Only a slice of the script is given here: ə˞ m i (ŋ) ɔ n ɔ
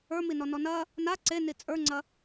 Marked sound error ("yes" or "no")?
yes